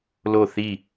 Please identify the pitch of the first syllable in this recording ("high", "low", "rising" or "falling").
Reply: falling